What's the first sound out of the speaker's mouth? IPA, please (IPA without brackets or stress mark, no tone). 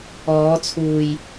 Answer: ɔː